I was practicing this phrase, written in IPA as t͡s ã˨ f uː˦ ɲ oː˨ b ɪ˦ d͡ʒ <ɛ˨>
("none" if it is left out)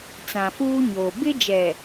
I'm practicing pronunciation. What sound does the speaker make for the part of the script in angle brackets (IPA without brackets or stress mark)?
ɛ˨